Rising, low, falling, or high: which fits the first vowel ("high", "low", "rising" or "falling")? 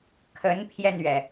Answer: rising